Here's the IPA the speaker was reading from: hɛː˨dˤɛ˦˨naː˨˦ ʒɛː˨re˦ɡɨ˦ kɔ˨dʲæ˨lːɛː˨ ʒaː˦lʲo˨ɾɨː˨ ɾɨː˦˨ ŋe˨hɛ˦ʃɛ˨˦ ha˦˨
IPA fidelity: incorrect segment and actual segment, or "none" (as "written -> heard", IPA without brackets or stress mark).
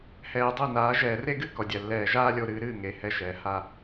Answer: none